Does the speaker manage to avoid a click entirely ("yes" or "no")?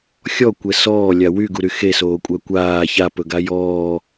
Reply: yes